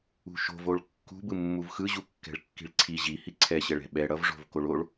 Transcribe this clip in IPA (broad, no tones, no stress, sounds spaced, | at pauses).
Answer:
ṳ ʃ o̤ v o ɭ kː ṳ b ɯ mː u v x ɯ ʑ u kː ɛ̤ ɭ kː i̤ ɭ ǀʰ i ʑ i h i ǀʰ ɛ ɕ ɛ ɭ ɛ̤ ɓ ɛ ɽ ʌ v ʐ o̤ v k o ɭ o ɭ